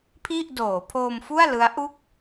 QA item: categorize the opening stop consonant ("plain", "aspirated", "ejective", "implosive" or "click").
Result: aspirated